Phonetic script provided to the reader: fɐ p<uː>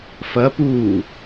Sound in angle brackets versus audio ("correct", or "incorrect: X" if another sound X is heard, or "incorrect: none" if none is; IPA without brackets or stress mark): correct